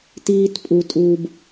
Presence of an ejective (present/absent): present